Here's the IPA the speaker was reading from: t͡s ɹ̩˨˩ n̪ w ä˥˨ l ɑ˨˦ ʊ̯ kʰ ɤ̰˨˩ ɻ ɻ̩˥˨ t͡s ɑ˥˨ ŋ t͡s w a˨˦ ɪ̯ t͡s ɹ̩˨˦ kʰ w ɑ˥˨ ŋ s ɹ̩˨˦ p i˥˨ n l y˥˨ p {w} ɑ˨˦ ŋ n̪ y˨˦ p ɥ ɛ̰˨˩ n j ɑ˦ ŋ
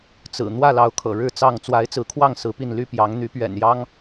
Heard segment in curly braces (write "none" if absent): j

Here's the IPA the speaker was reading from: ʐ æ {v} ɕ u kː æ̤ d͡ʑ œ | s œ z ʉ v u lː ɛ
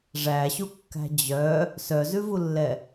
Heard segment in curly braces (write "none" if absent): none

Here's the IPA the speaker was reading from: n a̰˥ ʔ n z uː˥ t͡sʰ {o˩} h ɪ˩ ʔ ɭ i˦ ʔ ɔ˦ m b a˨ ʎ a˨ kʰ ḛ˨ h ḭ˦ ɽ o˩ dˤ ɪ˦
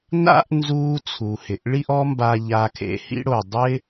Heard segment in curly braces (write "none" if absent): u˩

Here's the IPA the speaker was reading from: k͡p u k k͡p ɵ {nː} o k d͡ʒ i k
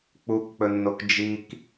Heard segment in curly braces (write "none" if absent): nː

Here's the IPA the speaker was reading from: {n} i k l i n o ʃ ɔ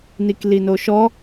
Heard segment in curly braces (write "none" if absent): n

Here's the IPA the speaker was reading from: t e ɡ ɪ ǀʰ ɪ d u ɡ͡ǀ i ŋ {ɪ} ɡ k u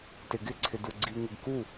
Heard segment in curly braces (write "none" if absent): ɪ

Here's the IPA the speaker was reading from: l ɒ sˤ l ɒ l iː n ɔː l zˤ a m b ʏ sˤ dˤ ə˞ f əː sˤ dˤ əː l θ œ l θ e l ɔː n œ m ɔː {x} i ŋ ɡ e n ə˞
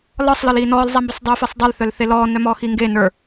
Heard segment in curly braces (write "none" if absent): x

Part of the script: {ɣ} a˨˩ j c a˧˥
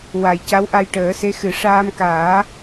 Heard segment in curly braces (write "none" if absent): w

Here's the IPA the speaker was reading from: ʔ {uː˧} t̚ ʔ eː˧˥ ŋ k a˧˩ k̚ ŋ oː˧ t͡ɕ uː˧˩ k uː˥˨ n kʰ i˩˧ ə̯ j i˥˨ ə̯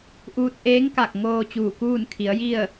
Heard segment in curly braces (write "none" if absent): uː˧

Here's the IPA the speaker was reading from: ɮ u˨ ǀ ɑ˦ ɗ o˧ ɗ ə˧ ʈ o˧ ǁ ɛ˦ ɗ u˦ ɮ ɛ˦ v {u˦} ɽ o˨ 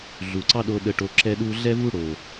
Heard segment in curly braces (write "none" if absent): u˦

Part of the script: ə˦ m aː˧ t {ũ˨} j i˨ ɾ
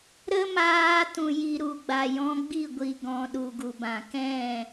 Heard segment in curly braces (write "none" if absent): ũ˨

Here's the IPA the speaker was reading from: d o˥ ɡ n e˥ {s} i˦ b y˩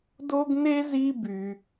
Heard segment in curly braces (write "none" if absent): z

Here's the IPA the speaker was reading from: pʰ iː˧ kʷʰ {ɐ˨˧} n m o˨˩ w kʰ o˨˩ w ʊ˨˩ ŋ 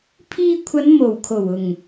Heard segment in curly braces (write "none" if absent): ɐ˨˧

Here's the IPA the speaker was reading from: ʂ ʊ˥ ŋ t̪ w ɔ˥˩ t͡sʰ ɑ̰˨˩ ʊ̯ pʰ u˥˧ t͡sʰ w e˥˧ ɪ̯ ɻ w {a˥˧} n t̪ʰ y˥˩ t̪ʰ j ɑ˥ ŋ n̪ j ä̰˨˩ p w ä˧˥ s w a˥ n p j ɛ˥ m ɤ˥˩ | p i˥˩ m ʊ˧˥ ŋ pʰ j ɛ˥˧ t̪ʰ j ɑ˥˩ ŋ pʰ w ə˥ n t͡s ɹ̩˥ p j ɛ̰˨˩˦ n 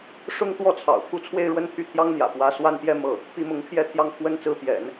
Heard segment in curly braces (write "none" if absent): ə˥˧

